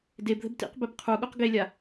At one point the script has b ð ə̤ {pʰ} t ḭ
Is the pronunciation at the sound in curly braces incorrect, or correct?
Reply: incorrect